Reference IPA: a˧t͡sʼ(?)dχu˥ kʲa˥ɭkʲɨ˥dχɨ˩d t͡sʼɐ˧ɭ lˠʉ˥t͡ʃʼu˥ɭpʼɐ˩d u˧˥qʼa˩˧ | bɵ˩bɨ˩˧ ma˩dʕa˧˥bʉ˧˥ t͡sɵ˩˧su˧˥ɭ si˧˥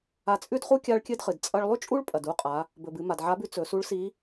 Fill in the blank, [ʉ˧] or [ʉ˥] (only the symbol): ʉ˥